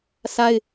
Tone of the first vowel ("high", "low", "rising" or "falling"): high